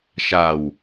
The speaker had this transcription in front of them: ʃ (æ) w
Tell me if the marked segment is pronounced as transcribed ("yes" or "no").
no